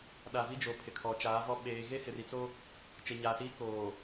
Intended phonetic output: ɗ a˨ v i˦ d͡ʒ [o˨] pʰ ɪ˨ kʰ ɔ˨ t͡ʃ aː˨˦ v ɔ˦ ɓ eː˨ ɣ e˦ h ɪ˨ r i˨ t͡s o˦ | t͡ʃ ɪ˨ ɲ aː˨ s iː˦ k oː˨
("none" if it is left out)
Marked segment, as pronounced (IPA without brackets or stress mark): o˨